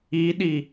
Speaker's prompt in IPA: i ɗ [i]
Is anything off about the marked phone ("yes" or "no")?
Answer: no